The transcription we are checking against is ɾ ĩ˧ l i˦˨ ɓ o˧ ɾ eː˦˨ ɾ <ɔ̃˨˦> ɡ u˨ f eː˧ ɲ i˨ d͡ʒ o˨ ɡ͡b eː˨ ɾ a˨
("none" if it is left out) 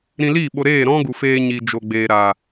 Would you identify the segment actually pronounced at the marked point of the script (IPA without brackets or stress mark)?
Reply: ɔ̃˦